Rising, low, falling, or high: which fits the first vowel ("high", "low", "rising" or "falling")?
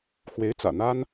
rising